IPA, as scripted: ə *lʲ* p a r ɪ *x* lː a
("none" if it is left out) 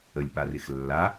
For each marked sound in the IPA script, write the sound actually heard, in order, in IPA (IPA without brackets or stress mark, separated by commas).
lʲ, x